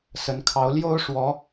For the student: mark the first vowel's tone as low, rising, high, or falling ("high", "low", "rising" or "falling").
rising